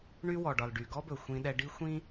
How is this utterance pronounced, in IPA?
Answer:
ɳ y˦ w ɔ˨ ɖ ɒ˨ l ɖ y˨ ɡ ɔ˦ b ɵ˨ xʷ ĩ˦ ɗ ɛ˦ ɖ i˦ xʷ ĩ˦

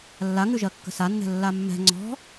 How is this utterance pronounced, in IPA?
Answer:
lː a ŋ ʉ ʒ ɜ kː ə̤ s a nː ɛ̤ lː a mː ɛ̤ ŋ͡ǀ ɔ̤

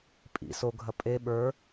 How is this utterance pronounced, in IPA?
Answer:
pʼ ḭ s o ɡʱ ɐ pʼ e ɓ ə˞

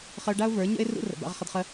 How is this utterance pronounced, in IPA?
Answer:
χ ə˧ ʊ̯ ɖ a˦ ʊ̯ v ə˞˨˦ ɲ ə̰˦ ɪ̯ r ṵ˦ r ə̰˨ b a̰˧ ʁ χ ə˧ d χ ə˧

